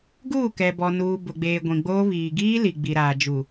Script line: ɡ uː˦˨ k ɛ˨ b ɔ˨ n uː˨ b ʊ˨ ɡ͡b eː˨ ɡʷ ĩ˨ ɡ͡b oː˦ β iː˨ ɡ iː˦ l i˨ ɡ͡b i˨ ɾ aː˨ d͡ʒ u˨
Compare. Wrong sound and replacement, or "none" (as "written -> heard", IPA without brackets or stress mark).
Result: none